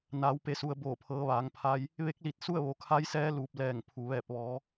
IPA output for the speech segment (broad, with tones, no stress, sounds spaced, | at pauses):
n aː˩˧ w p e˩˧ s u˩ ə̯ b oː˧˩ pʰ ɤː˩˧ ʋ aː˩˧ ŋ pʰ aː˧ j | ʋ e˧˥ k̚ l i˧˩ t̚ s u˥˨ ə̯ ʋ o˩˧ kʰ a˧˥ j s ɛː˧˥ l uː˧˩ p̚ l ɛː˧˩ ŋ pʰ u˩ ʋ ɛː˧˩ p̚ ʋ ɔː˩˧